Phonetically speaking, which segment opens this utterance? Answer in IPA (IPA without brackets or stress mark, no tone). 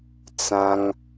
t͡s